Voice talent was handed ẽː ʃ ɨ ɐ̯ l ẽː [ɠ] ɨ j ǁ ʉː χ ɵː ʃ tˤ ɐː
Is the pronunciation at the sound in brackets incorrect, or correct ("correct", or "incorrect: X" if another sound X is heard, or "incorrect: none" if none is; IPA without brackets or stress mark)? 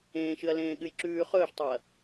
correct